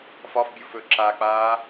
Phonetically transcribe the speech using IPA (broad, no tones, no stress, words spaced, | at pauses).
fɒfbʲuf ɵǁak͡paː